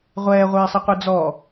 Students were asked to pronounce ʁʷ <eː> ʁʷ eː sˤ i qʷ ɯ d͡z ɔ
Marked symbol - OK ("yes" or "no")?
no